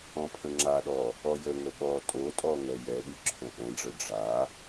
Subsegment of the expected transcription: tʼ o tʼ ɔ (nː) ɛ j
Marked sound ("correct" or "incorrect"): incorrect